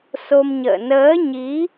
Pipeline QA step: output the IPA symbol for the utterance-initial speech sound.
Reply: s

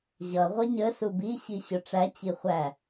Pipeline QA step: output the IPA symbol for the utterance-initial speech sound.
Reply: ʑ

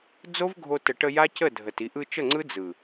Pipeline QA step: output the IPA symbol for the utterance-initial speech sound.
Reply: d͡z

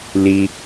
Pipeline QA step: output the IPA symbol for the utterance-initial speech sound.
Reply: l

